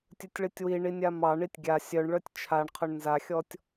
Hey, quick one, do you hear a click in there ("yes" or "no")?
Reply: no